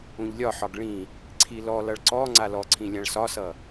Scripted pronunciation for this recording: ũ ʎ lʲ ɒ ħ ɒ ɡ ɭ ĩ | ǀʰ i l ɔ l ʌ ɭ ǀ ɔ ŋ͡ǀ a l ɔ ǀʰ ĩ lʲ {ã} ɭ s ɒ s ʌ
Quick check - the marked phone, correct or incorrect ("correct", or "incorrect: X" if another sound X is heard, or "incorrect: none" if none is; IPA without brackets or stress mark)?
correct